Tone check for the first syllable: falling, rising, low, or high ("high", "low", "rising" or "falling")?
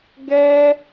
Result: high